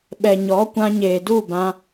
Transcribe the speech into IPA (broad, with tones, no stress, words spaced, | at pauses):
ɓɛ˨ɲɔ˨˦kʷã˧ɲeː˨ du˦˨bã˧